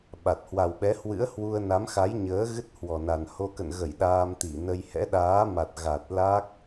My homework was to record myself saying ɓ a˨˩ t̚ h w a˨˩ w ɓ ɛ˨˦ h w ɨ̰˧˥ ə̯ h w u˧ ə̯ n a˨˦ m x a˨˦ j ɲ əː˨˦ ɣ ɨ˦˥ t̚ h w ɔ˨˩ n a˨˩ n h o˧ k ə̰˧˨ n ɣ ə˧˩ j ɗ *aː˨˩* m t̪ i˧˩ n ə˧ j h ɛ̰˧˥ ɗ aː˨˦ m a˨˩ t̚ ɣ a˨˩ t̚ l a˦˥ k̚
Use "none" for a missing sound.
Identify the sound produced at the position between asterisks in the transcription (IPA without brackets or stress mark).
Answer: aː˧